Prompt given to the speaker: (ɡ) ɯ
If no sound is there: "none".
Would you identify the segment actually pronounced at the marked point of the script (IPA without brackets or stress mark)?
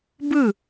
b